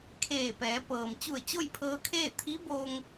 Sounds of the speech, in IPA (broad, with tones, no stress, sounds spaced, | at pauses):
kʰ eː˧˩ p ɛː˩˧ p ɤː˩ m t͡ɕ u˧˩ ə̯ t͡ɕ o˥˨ j pʰ ɤː˧ kʰ eː˥˨ t̪ʰ i˧˥ b oː˧ ŋ